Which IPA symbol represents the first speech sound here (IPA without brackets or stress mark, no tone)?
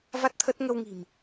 v